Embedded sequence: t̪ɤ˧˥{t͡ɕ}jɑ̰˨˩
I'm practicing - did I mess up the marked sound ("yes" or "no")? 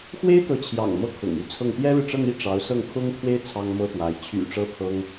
yes